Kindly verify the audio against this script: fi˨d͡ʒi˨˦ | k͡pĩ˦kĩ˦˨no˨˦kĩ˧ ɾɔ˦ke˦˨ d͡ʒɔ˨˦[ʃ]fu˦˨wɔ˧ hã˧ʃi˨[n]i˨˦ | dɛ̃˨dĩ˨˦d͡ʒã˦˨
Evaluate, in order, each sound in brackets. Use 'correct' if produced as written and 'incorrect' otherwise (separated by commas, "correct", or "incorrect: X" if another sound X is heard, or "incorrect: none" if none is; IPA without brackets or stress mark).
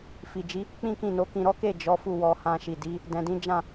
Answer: incorrect: none, incorrect: d